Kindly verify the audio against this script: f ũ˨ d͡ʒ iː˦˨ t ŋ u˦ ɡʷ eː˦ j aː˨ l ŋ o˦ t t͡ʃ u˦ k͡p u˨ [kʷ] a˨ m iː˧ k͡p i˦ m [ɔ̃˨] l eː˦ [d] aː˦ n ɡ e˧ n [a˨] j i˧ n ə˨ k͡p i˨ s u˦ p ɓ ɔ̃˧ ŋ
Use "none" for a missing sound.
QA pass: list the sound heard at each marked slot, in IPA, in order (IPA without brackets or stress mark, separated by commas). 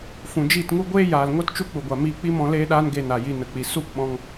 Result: ɡʷ, ɔ̃˧, ɗ, a˨